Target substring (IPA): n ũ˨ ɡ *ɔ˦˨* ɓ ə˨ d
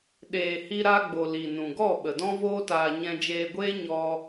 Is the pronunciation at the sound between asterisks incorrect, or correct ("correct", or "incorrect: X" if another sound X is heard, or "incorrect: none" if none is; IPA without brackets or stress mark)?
correct